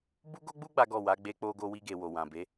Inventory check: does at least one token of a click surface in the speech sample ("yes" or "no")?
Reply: no